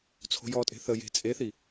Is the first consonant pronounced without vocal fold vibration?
yes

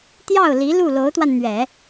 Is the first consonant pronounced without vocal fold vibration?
yes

